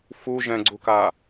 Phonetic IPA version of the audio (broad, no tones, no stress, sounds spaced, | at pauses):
f u ʒ ɛ̃ ɡ͡ǀ u k a